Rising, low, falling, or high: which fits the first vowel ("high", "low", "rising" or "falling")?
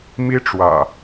high